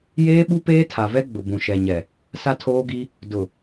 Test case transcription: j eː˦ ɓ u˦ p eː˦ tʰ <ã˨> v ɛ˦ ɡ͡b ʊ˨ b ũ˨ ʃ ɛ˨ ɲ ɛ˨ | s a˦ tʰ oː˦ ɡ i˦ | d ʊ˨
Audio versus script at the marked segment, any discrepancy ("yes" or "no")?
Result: yes